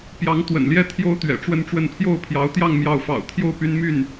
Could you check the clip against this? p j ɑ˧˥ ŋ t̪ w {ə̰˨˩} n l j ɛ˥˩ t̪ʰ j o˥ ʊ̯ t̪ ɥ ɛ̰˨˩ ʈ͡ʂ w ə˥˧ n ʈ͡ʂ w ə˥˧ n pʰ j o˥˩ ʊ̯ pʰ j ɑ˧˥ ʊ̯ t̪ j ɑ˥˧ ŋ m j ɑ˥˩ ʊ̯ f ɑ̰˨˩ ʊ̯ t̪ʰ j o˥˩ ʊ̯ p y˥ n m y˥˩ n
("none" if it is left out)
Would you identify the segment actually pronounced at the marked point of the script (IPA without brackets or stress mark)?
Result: ə̰˨˩